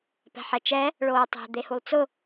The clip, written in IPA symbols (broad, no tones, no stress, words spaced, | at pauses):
pɛ̤ħɛt͡ʃɛ | ɭoːtˤɛ̤ d̪ehulˠt͡sʊ